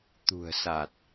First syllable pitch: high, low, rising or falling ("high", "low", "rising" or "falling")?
low